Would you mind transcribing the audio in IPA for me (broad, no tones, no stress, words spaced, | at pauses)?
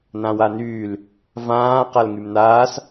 nãwanyːl | vãː qalŋymnaːs